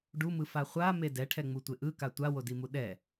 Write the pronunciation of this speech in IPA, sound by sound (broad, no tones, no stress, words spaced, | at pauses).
ɖumɯfa χʷame dɛʈʰɛŋ͡mutʷe ʔɯka tʷawodimu ɗɛ